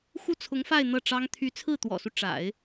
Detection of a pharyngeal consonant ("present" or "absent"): absent